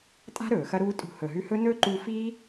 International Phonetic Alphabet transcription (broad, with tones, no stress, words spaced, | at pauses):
tʼa̤˦ ɾɵː˨xɐ˦ɾuː˦ tʼṳ˧ hɵ˨ɦʉ˧hɵ˦ nɵ˦ǃu˧fiː˦